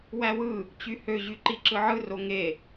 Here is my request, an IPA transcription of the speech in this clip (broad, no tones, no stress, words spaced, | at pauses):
wæwɯ | t͡ɕyhø ʑyǃiǁɯʕɯ roŋe